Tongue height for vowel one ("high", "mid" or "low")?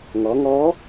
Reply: mid